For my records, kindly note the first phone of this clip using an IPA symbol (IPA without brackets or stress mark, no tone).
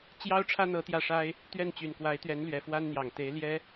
t͡ɕ